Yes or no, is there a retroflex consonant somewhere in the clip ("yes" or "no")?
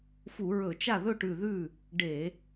yes